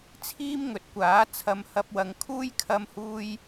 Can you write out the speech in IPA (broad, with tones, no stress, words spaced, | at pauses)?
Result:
t͡sʰiː˥mŋɵ˨˥t̚kʷaː˨˥ t͡sʰɐ˧mhɐ˧p̚wɐ˨˧ŋ kʰuː˥jkʰɐ˧mhuː˧j